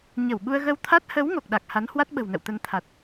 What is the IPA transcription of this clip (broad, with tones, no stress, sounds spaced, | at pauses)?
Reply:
ɲ ə˧˩ w ɓ u˧ ə̯ ɣ ə˧ w t̪ʰ a˦˥ t̚ h ə˨˦ w ŋ o˨˩ k̚ ɗ a˨˩ k̚ h a˨˦ n h w a˦˥ t̚ ɓ ə̤˨˩ w n ə̰˧˨ w t̪ ə˧ n t̪ʰ a˨˩ t̚